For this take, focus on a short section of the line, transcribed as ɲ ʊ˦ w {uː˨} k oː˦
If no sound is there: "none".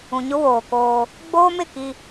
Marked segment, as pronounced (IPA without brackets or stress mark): oː˨